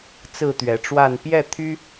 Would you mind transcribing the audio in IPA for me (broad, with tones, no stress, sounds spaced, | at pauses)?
t͡s ɹ̩˥˨ t̪ ɥ ɛ˨˦ ʈ͡ʂ w a˥˨ n p j ɛ˥˨ t̪ʰ y˦